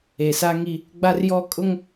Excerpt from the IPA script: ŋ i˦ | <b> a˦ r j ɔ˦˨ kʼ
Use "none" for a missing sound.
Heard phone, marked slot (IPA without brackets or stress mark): ɡ͡b